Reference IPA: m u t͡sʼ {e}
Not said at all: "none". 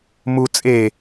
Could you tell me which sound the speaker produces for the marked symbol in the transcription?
e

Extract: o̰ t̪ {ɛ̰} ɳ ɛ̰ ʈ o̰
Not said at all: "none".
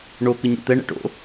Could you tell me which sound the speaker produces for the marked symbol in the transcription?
ɛ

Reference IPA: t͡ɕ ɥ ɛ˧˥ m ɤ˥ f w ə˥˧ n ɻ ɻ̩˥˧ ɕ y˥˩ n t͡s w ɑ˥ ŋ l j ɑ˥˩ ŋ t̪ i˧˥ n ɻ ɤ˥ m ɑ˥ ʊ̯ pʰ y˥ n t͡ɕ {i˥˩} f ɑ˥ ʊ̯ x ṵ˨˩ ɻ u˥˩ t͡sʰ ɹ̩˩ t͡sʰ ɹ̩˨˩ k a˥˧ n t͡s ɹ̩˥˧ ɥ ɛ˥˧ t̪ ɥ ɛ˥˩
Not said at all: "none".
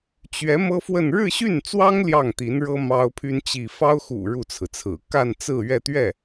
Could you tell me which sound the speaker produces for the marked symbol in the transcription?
i˥˩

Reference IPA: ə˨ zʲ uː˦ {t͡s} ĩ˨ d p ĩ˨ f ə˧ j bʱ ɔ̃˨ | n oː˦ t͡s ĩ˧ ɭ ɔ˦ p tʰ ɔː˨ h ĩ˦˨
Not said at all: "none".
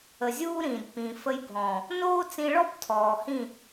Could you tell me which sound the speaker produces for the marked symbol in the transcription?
ɾ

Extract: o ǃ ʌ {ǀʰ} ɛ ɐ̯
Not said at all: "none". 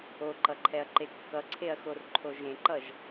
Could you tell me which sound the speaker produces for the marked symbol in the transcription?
ǃʰ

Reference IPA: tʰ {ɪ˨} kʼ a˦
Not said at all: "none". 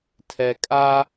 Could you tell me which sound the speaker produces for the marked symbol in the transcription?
ɛ˨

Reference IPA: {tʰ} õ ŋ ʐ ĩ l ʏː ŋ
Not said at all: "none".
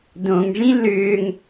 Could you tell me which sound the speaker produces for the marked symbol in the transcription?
d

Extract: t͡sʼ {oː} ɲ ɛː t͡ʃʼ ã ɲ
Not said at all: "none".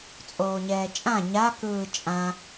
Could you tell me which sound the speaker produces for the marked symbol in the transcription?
oː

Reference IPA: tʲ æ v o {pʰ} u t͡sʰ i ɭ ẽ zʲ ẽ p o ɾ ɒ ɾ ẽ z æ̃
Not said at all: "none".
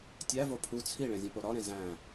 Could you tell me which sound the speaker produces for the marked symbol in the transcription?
pʰ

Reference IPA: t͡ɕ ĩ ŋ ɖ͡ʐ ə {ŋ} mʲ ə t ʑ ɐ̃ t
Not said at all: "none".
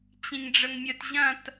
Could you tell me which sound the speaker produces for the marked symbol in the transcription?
ŋ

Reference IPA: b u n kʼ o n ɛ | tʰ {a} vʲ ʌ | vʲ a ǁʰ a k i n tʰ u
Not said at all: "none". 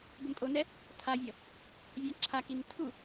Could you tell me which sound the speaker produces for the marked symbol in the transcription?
a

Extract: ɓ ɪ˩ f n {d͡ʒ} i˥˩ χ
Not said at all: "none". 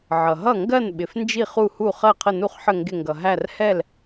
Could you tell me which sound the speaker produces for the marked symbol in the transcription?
d͡ʒ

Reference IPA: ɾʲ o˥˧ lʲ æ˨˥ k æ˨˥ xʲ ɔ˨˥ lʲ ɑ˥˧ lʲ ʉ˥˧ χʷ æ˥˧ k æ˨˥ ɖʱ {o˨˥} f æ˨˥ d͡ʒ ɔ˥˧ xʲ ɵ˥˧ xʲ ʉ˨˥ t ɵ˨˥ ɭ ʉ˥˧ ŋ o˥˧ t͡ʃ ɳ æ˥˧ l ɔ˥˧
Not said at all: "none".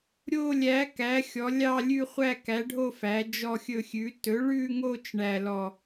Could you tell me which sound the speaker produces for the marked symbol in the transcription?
o˥˧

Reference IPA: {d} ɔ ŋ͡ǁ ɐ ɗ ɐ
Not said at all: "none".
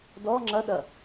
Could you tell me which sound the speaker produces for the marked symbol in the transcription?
d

